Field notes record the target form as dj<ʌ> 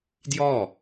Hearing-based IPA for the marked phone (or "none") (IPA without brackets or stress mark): ɔ